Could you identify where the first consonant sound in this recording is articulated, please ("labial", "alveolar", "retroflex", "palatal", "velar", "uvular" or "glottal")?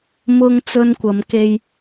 labial